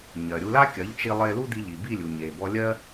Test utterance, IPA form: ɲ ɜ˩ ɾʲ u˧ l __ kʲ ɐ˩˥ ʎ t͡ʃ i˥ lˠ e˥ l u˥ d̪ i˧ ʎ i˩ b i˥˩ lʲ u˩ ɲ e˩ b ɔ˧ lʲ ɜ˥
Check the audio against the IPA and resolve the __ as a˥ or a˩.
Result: a˥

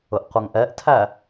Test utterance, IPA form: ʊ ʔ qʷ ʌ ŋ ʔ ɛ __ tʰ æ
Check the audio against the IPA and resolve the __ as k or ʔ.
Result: ʔ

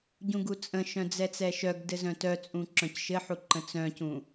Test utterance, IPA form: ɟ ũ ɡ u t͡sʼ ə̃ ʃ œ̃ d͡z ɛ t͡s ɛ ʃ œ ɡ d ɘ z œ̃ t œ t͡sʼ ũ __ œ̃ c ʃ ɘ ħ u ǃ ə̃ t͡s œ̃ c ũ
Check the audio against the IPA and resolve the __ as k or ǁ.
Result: ǁ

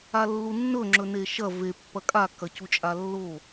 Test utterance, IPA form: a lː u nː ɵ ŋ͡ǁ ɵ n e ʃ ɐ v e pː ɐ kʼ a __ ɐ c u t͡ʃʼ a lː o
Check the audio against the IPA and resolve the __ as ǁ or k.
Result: k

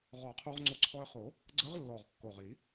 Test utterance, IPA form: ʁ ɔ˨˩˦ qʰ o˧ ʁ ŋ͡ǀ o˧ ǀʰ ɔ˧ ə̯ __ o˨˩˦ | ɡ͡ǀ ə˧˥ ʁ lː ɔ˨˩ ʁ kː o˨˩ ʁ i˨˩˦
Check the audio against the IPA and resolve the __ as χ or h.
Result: χ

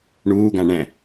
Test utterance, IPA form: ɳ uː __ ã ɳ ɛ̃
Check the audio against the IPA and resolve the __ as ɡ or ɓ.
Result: ɡ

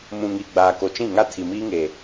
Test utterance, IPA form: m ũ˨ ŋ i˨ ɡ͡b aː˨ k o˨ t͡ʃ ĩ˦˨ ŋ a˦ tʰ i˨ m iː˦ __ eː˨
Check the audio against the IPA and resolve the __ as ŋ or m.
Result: ŋ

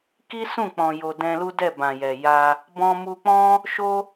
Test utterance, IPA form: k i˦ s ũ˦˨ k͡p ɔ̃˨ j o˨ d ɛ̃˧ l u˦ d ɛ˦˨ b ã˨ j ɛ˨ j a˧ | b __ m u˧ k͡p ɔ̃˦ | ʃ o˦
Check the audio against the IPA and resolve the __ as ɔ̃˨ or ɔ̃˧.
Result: ɔ̃˧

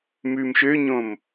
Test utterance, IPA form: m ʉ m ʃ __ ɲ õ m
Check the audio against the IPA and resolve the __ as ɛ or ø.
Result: ø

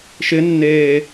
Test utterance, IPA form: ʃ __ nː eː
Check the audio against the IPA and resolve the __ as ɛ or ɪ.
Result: ɪ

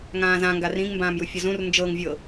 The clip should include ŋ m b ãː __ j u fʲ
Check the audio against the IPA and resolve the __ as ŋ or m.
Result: m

